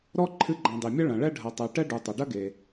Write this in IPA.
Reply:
ɾ ɔ˥ ǃʰ ɨ˦ ɡ͡ǃ ã˨ dˤ i˩ mʲ ɐ˥ ɭ ɐ̃˩ ɭ ɛ˥ ɖʱ ɐ˨ tˤ ɛ˨ ʈ ɛ˦ ɖ u˩ tˤ ɐ˩ ɖ ɐ˥ ɡ e˩

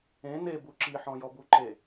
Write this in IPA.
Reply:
ẽ n e b u ǁ i ħ ɔ̃ j ɔ b u ǃ e

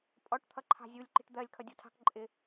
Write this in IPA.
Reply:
pʼ ɔ ʈ t̪ʰ ʌ ǃʰ ɑ̤ zʲ u lʲ ǃ i̤ ʈ d̪ ɜ lʲ kʰ ʌ dʲ ɔ tʰ ɑ̤ k ǃʼ ɪ

